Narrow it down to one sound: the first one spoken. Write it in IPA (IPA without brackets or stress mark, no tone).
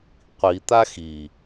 qʷ